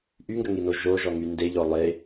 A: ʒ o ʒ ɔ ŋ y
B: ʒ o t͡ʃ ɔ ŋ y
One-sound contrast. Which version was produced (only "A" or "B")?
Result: A